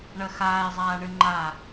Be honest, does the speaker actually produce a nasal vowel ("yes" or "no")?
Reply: no